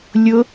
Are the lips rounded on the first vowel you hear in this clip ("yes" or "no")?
yes